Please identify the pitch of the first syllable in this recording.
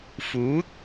rising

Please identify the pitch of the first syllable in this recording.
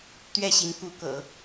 falling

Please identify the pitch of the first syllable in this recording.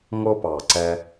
high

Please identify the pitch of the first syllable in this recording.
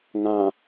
low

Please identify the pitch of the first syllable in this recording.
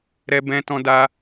high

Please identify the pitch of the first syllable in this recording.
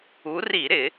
rising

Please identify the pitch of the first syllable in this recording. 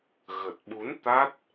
low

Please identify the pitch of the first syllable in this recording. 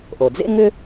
low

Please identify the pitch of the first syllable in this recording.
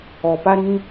low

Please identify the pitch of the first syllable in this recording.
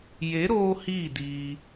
rising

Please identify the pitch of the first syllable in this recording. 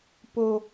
high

